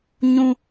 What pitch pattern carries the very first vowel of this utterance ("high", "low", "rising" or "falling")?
high